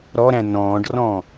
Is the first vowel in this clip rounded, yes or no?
yes